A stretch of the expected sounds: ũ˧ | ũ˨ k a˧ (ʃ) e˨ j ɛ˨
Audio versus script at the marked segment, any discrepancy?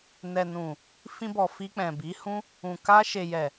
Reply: no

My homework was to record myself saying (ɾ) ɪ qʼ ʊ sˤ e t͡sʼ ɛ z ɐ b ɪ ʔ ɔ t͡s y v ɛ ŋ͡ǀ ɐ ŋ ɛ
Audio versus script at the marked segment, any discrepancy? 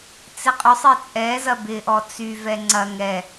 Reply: yes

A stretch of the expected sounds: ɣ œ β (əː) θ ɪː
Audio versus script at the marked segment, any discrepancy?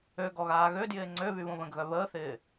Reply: no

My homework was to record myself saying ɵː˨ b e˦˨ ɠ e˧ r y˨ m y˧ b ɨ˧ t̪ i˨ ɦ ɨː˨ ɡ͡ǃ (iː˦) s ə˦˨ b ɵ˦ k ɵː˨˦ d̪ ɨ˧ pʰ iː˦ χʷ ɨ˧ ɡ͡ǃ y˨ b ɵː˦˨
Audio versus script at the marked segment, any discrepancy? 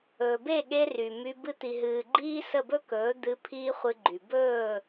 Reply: no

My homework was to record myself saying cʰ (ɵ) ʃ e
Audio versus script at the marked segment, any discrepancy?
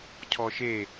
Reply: yes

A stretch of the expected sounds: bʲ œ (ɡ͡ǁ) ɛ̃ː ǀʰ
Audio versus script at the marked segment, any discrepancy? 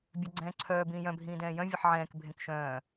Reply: yes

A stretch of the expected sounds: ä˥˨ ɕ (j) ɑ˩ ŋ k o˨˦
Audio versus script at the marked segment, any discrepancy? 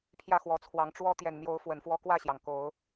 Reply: no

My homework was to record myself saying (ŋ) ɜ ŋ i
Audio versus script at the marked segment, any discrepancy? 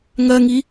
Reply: no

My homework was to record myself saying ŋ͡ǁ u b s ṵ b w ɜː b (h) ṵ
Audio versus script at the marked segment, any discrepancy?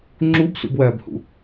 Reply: no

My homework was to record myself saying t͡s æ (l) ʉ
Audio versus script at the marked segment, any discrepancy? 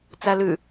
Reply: no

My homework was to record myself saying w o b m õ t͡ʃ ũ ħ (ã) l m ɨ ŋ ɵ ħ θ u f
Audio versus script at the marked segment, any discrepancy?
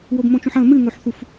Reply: yes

